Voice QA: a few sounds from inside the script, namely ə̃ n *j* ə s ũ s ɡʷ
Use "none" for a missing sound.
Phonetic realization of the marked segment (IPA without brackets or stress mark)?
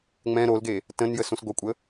j